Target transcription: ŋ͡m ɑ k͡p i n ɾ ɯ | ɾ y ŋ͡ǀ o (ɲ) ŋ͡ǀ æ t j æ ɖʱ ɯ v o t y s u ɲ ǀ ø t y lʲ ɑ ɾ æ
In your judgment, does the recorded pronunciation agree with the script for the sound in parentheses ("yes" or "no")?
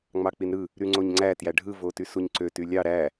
yes